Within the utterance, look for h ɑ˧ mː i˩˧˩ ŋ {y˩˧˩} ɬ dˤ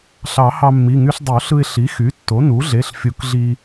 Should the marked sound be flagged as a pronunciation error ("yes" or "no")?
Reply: yes